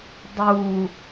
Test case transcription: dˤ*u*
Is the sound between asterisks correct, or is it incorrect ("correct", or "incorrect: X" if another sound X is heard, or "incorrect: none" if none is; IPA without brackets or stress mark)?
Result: correct